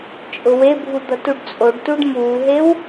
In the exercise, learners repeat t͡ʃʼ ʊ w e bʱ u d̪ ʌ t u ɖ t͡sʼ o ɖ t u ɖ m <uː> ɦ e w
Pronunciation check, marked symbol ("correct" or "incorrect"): correct